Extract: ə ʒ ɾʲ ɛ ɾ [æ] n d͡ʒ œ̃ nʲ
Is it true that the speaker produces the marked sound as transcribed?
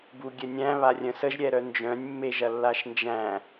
no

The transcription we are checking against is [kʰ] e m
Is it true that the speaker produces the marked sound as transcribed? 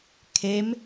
yes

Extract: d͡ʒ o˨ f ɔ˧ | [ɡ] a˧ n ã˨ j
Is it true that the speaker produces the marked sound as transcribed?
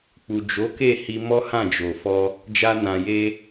no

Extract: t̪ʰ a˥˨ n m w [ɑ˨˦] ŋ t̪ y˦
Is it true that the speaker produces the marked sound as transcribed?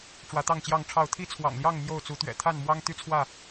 no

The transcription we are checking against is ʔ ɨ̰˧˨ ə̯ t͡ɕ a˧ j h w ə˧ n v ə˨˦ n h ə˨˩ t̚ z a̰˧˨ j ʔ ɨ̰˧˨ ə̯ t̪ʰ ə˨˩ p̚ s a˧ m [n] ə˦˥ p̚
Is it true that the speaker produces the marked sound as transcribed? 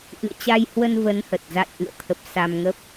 no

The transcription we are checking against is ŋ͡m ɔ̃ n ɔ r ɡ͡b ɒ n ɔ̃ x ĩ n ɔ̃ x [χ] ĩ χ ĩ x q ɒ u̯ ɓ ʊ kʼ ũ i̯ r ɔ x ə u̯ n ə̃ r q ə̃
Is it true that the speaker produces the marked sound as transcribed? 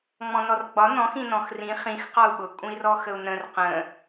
no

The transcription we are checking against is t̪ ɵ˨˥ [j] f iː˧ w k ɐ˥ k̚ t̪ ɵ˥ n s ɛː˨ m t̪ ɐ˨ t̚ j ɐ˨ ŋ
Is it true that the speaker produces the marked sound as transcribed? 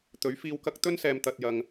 no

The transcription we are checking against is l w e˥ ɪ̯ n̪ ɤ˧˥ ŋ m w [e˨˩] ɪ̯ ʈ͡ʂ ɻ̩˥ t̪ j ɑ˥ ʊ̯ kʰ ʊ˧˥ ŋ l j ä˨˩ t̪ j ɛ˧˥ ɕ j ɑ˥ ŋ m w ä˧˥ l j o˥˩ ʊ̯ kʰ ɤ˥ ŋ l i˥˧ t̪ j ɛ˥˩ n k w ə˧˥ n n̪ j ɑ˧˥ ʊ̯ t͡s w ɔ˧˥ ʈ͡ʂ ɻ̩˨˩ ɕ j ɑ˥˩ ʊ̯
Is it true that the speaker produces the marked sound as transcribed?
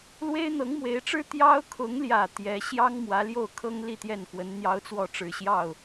no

